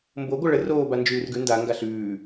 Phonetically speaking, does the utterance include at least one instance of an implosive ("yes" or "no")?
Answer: no